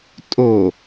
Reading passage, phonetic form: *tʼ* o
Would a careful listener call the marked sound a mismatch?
no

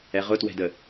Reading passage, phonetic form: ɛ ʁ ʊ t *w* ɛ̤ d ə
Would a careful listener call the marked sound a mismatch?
no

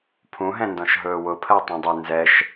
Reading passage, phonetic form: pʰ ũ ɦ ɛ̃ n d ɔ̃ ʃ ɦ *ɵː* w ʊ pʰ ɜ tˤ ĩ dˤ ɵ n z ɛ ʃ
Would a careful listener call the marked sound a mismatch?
no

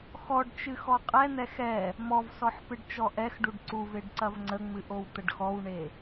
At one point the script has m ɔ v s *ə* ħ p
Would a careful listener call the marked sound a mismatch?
yes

